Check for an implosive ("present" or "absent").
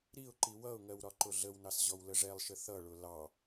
absent